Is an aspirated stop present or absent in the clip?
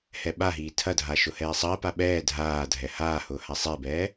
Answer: present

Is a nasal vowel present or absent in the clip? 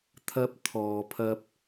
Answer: absent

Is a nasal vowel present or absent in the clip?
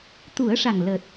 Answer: absent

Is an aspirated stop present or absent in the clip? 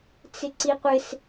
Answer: absent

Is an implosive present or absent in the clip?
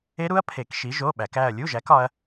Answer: present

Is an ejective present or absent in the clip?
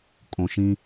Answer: present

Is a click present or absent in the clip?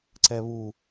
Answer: present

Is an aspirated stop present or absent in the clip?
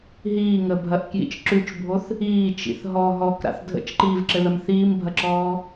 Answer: absent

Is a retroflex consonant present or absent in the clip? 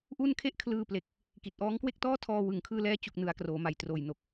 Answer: absent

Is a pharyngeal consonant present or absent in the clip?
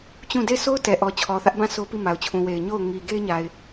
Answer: absent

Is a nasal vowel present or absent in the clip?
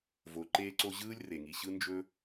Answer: absent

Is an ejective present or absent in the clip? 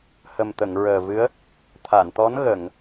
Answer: absent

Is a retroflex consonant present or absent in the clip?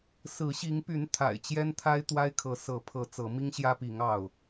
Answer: absent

